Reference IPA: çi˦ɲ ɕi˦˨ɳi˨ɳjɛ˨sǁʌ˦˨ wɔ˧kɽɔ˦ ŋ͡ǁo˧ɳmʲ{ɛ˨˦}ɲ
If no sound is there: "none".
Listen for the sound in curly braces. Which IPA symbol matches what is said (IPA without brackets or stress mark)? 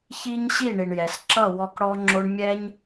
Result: ɛ˦